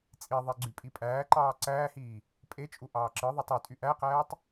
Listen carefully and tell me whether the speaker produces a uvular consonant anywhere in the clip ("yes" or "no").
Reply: yes